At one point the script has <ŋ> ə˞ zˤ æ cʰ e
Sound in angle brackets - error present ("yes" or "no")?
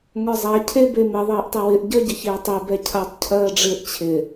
no